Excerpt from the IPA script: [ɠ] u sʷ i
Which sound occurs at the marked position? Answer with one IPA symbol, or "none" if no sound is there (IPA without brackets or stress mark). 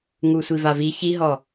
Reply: ŋ